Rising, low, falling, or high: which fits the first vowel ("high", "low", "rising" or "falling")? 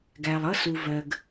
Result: low